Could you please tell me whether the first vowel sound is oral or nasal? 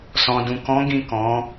nasal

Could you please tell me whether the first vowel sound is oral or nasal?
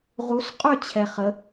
oral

